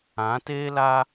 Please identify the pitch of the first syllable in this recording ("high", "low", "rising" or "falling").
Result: rising